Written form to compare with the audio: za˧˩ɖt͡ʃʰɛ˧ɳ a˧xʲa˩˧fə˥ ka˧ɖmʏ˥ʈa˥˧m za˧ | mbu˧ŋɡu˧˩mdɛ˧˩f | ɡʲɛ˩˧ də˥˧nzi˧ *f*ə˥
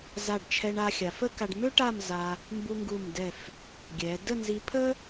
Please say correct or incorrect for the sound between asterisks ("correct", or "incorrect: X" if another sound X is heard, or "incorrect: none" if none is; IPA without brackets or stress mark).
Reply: incorrect: pʰ